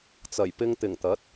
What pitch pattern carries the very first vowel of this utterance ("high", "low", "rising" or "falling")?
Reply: low